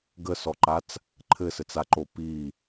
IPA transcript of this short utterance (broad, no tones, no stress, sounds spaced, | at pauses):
ɡ ə s ɔ ǃ a t͡s | ǃʰ ɘ s ɘ t͡s a ǃ o p i